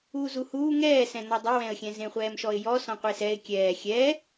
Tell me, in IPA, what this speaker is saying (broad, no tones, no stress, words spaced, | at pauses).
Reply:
uːzuhuː ŋɛːsɛ̃ n̪ɔdˤewɛ̃ə̯xʲɛ̃ zẽχʷɛːmʃɔɪ̯jɔ sɔ̃qʷesɛɪ̯ kʲɛː xʲɛ